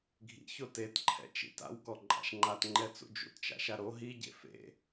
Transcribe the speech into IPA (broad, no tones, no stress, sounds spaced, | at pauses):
ɡʱ ḭ ç o t e t ǃʰ ɛ̰ t͡ʃ ḭ t a̰ w k ɔ ǃʼ a̰ ʃ ŋ͡ǃ a t ŋ͡ǃ ɛ t͡s ṵ d͡ʒ ṵ t t͡ʃ a̰ ʃ a ɾ o ɦ i ɟ ḛ f ḛ